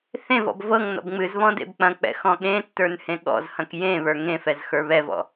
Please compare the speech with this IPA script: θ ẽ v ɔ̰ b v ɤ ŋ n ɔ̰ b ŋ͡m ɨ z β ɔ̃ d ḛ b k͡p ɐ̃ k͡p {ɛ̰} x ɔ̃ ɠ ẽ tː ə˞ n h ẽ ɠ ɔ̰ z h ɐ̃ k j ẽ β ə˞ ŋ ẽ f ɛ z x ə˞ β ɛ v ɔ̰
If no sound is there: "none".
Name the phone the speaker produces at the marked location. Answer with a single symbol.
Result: ɛ̰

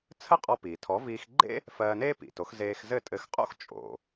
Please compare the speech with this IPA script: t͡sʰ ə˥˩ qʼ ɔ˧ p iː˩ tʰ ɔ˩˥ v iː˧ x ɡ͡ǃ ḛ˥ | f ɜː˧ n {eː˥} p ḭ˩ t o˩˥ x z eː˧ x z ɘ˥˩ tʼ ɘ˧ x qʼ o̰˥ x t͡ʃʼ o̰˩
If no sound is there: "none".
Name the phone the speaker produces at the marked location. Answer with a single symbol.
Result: eː˥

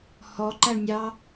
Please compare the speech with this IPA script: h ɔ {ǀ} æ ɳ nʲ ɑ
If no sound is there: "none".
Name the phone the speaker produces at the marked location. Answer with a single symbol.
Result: ǃ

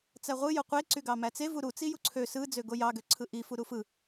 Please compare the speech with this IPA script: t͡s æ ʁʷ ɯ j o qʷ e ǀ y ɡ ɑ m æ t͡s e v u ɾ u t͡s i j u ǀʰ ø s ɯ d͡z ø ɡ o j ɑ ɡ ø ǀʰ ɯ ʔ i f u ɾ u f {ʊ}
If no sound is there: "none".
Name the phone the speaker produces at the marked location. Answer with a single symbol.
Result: ɯ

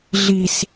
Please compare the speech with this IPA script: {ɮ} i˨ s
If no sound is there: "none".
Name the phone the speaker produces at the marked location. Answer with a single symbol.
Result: ɮ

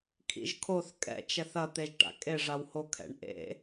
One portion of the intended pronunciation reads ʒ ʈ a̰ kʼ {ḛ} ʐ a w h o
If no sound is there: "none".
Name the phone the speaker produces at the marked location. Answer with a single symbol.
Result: e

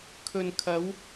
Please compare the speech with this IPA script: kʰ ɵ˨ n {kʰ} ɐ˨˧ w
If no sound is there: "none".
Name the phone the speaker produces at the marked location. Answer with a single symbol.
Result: kʰ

